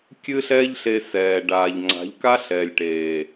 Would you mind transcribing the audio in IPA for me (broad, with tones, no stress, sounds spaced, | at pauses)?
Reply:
kʲ ɨ˦ ɬ ɛ˦ ʎ ɬ e˧ s ɛː˨ ɖ aː˨ ʎ ŋ͡ǀ a̤˨˦ ʎ k a˦ ɬ ɛ˨ lʲ ʈ eː˨